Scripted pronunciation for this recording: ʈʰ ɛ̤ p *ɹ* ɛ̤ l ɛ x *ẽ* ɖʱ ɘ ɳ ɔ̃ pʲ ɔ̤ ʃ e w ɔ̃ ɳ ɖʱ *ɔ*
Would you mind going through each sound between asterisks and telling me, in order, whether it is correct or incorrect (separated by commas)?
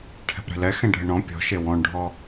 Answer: incorrect, incorrect, correct